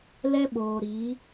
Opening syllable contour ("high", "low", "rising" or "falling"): high